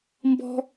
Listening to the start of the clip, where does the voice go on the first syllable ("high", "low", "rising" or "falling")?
high